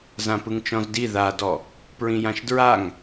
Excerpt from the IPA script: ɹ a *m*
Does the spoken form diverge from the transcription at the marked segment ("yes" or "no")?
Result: yes